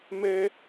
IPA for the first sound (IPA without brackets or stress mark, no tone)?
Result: m